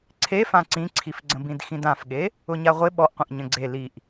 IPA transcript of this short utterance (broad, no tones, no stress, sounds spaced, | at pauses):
ǀʰ e f ã ǀ ĩ ǀʰ i f ɡ͡ǀ ə̃ b ĩ d x ĩ d ã f ɠ e | ʊ ɲ a ʁʷ ɪ ɓ ɔ ʔ qʷ ə̃ ʔ ɲ ə̃ ɡ͡ǀ e l i ʔ